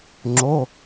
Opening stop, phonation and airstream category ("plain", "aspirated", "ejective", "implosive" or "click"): click